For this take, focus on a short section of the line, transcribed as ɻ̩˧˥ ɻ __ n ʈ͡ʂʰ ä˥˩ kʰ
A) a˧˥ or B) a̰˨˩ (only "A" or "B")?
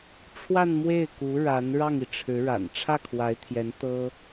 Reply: B